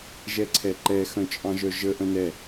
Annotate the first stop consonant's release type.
click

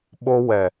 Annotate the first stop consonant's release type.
implosive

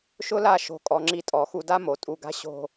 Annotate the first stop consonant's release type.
ejective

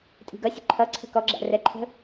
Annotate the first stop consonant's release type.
ejective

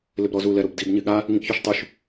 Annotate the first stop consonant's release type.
plain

